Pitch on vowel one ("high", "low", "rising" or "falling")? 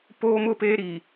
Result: high